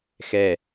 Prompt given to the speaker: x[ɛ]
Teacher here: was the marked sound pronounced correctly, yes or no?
yes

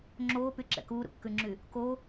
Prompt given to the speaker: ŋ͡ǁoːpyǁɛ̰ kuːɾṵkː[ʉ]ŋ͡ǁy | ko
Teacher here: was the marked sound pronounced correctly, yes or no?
yes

